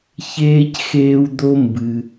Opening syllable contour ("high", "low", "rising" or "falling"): high